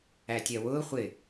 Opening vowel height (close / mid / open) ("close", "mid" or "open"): open